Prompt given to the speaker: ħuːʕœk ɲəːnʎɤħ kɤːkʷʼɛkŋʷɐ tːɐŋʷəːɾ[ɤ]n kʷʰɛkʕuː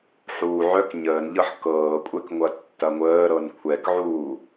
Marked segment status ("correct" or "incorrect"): correct